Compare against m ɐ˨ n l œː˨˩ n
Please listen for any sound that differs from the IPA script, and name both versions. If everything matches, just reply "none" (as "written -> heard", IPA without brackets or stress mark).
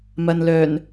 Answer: none